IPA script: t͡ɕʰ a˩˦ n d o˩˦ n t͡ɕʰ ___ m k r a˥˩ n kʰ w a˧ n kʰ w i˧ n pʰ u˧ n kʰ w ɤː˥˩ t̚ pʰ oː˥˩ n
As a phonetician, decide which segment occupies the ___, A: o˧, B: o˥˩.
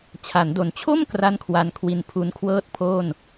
B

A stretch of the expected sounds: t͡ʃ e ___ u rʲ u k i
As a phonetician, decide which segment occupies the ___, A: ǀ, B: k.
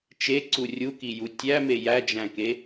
A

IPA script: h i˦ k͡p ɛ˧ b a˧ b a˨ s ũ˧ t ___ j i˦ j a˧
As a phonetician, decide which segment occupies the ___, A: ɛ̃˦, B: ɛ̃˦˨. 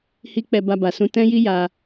A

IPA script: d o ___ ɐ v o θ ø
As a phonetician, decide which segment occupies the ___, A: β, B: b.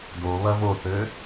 A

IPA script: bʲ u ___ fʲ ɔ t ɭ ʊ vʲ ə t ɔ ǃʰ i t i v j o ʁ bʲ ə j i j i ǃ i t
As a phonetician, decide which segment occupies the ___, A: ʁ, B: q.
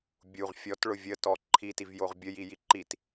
A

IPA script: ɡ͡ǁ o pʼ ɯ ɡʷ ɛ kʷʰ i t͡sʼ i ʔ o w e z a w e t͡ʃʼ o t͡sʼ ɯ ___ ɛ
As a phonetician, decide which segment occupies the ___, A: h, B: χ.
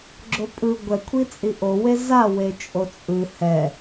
A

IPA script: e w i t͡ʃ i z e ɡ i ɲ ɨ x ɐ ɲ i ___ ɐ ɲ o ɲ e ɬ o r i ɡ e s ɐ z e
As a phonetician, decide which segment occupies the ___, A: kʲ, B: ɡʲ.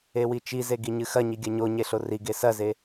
B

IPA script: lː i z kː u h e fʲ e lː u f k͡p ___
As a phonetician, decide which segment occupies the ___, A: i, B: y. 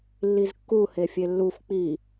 A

